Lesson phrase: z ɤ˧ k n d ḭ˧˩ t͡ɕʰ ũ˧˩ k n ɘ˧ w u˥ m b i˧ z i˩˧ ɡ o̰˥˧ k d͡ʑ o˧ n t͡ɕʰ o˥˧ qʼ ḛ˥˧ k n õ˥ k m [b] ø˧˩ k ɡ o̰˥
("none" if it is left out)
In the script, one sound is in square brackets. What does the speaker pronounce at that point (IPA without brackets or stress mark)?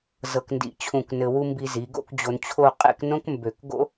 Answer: b